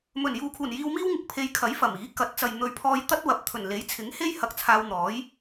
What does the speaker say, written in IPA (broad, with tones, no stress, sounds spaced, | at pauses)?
m ɵ˨˩ n j uː˨ kʰ uː˨˩ n j iː˧ w m iː˥ w ŋ ɪ˨˥ k̚ pʰ e˧ j kʰ ɐ˨˥ j f ɐ˨˩ m iː˨˥ k ɐ˨˥ t̚ t͡s ɐ˨ j n̪ ɵ˨ ɥ pʰ ɔː˧ j t̪ ɐ˥ t̚ w ɐ˨ p̚ t̪ʰ ɵ˨˩ n l e˨˥ j t͡sʰ ɪ˨˥ ŋ h e˥ j h ɐ˧ k̚ t͡sʰ aː˧ w n̪ ɔː˨˥ j